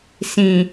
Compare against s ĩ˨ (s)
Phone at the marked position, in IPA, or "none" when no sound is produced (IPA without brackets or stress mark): none